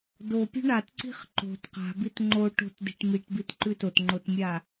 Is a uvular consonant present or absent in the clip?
present